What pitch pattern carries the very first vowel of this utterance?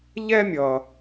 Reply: high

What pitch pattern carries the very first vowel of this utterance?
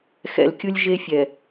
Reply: low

